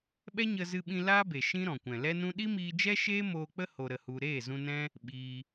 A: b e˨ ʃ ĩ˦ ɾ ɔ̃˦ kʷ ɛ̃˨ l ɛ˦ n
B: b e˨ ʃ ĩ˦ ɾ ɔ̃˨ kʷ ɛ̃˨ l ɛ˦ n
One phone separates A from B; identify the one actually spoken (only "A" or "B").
B